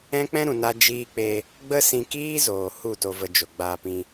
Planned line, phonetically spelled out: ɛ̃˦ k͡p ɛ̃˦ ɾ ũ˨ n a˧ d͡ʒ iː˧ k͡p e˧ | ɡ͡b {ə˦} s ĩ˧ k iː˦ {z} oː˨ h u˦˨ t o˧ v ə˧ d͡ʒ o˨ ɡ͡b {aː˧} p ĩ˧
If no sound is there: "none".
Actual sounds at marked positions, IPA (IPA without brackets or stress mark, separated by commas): ə˦, z, aː˧